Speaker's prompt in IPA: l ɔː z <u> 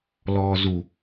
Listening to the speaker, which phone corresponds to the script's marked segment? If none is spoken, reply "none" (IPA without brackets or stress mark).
u